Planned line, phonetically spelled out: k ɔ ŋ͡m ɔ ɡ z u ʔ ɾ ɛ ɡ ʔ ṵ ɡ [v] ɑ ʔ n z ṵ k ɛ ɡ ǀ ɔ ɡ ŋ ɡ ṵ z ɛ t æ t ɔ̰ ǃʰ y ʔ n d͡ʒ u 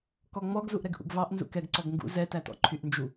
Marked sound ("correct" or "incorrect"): correct